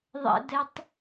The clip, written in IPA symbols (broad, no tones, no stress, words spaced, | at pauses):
ðˤɛ̰dɛtˤ